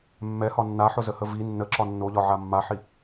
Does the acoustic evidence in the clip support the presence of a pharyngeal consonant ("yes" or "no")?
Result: yes